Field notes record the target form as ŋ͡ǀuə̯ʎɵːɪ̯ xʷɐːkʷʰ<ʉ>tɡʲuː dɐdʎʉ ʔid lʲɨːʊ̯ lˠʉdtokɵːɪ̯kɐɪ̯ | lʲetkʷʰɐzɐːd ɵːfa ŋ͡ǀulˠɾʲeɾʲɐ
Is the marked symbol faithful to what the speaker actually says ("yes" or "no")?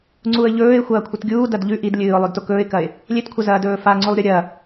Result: no